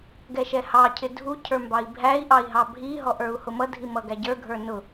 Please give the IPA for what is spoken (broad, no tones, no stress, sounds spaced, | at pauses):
ɡ ɛ ʃ ɛ h ɑ cʰ ɪ dʱ u cʰ ə˞ m b ɑ i̯ bʱ æ i̯ ʔ ɑ i̯ ɦ ɑ bʱ i ɦ ɔ ʔ ə˞ u̯ h ʊ m ʌ dʱ i m ʌ ɡ æ ɟ ə˞ ɡʱ ə˞ n ʊ